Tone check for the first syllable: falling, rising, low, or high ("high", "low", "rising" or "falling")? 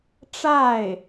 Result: falling